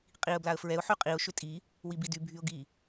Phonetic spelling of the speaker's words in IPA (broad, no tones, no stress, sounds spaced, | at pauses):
qʼ i ə̯ b l a ə̯ f ɹ ɛ ʊ̯ ħ y qʼ i ʊ̯ ʃ ʏ tʼ i | w i b i d y bʱ y ʊ̯ ɡ i